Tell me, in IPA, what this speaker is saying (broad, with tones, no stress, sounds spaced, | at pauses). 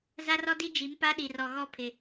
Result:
z a˦ r ɔ˦ d i˦ d͡ʒ i˨˦ m p a˦ ɗ i˨ r ɔ˨ ɣ ɔ˦ pʰ ɪ˨